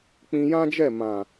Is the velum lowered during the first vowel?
yes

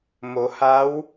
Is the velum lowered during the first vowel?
no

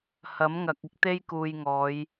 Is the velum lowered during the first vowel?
no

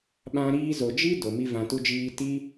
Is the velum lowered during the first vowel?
yes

